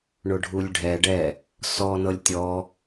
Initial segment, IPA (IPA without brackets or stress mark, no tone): ɳ